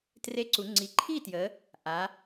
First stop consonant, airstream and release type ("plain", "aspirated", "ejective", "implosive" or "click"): plain